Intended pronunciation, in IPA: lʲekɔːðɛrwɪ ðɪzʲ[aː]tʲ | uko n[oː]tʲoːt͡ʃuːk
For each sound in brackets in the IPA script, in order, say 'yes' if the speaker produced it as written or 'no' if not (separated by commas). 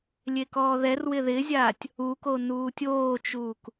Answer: yes, no